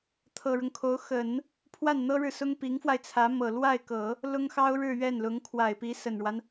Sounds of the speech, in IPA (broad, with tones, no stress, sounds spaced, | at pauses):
t̪ʰ ɤ˨˩ ɻ ʊ˦ ŋ kʰ o˧˥ ʊ̯ x ə˨˩˦ n | pʰ w a˥˩ n n̪ ɤ˥ ɻ ɻ̩˨ s ʊ˥ ŋ p i˧˥ ŋ f w a˧ ɪ̯ t͡sʰ ä˧˥ m ɤ˨˩ l w a˥˩ ɪ̯ k ɤ˨˩˦ | l ʊ˥ ŋ x ɑ˥ ʊ̯ ɻ ɻ̩˥˧ ɥ ɛ˥˩ n l ʊ˧˥ ŋ kʰ w a˨˩ ɪ̯ p i˧˥ s ə˨˩ n ɻ w a˦ n